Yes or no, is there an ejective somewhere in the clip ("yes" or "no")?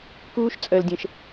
yes